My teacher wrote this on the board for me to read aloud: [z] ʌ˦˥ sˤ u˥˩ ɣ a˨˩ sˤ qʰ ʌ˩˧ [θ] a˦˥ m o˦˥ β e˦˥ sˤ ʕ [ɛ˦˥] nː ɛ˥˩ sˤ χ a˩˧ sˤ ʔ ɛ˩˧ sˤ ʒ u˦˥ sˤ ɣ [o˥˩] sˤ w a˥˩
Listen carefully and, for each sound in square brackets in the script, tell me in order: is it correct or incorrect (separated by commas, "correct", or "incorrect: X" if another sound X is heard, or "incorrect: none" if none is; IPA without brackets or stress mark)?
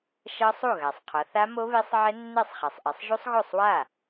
incorrect: ʃ, correct, correct, correct